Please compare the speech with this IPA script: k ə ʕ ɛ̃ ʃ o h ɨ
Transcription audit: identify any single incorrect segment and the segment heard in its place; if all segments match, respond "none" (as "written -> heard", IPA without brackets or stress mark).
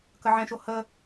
ɨ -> ə